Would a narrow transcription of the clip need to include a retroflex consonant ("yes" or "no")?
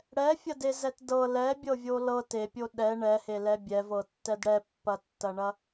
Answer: yes